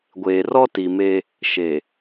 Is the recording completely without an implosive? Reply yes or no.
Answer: yes